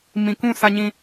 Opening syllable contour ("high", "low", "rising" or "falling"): low